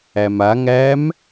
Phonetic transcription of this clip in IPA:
æ m a ŋ æ m

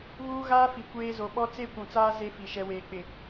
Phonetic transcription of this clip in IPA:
β uː˦ ɣ aː˦ f i˨ kʷ eː˦ z o˨ ɓ ɔ˦ t͡s e˦ kʷ ũ˨ t͡s aː˦ z e˦ f i˨ ʃ ɛ˨ w eː˨ k͡p ɪ˨

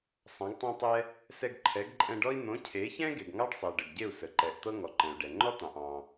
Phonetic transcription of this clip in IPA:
sˤ ɑ̃˨˦ ɡ tˤ ɑ̃˦ tˤ ɛ˦ | s ɛ˧ ɡ ǃʰ ɛ˨˦ ɡ ǃʼ ɛ̃˧ ɖ ɔ˦ i̯ n̪ õ˨˦ cʰ e˨˦ ç ɛ̃˦ ɡ e˨ ɡ ŋ ɑ˦ ɖ sˤ e˨ ɖ ə˨ ɡ ɟ e˦˨ u̯ s ə˨ ǃ ɛ˨ ʔ t̪ ɤ˦ ŋ ɔ˨ ǃ ɛ̃˨ u̯ ɖ ɛ˨ ŋ͡ǃ ɔ˦ t̪ ɑ̃˨ ʔ ɑ̃˧

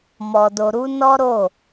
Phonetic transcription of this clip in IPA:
m ɔ˧ d o˧ ɾ u˦ n ɔ˦ ɾ o˦˨

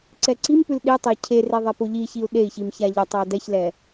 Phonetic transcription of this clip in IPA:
ǀ ɛ ǀ i m p ʉ l ɗ i tˤ e cʰ e r e ðˤ ɛ p o ʎ i ç i u̯ ɗ e i̯ ç i m ç a ʎ ə tˤ ə i̯ d ɛ ç l ɛ

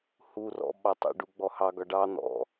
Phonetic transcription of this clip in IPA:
h u r ɔ̰ ɓ ɑ tˤ ɑ̰ ɖ u ɡ͡b ɔ h ɑ ɡ ɒ ɖ ɑ n̪ ɔ̰

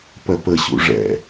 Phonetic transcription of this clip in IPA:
p ɜ p ə ɕ ṵ ʐ ɛ̰

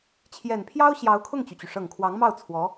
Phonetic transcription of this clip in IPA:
t͡ɕʰ j ɛ˨˩ n pʰ j ɑ˥ ʊ̯ ɕ j ɑ˧˥ ʊ̯ kʰ ʊ˥˩ ŋ t͡ɕ y˩ t͡ɕ y˩ ʂ ɤ˨˩ ŋ kʰ w ɑ˧˥ ŋ m ɑ˥˩ ʊ̯ t͡sʰ w ɔ˧˥

